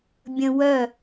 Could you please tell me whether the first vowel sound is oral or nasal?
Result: nasal